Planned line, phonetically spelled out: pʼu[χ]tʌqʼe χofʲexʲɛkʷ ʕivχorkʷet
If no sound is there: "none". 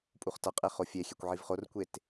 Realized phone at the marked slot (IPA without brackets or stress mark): χ